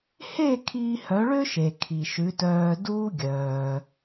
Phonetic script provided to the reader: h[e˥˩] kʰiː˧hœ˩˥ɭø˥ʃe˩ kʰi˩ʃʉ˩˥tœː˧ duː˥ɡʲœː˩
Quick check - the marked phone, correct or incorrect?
correct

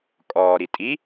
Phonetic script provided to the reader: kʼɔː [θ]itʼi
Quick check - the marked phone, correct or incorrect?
incorrect: ɾ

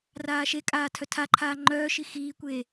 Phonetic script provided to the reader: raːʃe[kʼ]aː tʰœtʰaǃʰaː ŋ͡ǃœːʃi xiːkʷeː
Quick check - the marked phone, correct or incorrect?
correct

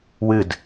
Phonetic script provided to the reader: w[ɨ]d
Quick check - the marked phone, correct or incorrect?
correct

